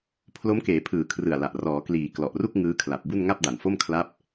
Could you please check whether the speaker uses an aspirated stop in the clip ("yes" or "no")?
yes